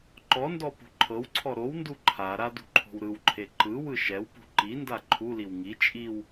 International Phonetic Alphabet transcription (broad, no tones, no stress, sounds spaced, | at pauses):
ǃ ɔ n d ɔ p ṳ ǃʰ ɤ w ǀʰ ɔ ɾ o w n d u ǃʰ a ɾ a d ṳ ǃʰ o̤ w ɾ ɯ w ǃʰ e ǃ ɯ w ɯ ʃ ɛ w p ṳ ǃ i n d a ǃʰ u l i w ŋ i t͡ʃʼ i w